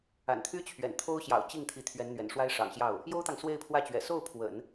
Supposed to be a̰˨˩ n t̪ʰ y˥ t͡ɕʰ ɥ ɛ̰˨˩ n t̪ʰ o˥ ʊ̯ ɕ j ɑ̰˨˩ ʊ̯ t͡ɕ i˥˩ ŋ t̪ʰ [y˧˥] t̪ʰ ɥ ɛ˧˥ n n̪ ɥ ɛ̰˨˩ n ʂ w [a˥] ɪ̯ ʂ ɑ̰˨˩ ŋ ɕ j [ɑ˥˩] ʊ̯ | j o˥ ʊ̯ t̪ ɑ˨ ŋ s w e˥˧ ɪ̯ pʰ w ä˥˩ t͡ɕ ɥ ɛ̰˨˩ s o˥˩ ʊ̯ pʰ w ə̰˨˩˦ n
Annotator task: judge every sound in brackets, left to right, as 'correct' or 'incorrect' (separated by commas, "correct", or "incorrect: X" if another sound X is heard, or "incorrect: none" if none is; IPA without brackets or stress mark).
incorrect: i˧˥, correct, correct